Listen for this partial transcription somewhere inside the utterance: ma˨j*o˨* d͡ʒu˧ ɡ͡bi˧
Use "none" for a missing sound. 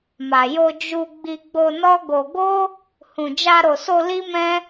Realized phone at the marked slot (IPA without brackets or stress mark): o˧